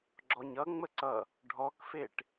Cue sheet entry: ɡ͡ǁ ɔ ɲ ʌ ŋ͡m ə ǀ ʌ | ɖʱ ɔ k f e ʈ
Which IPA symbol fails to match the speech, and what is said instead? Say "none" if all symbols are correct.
none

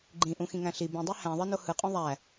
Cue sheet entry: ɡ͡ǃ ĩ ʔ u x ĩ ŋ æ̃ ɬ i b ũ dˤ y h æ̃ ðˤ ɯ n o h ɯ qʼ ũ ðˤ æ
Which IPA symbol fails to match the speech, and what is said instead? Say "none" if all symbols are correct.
u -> ũ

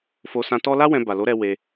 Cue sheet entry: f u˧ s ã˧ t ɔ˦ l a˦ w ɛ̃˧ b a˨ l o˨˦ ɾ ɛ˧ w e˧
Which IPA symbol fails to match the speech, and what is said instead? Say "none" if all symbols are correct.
u˧ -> o˧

